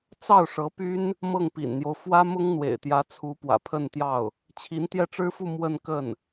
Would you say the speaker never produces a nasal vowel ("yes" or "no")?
yes